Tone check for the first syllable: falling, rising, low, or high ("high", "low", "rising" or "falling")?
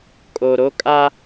low